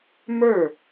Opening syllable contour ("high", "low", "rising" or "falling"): falling